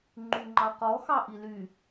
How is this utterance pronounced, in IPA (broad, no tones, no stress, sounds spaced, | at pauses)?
ŋ͡ǃ y ŋ͡ǃ ɑ q ɔ x ɑ ʔ i l y